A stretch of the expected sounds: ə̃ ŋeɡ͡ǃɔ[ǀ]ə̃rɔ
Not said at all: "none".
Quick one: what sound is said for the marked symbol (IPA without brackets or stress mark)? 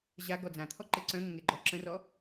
ǁ